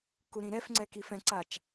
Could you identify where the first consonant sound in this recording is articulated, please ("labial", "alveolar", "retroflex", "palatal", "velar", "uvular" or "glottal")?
velar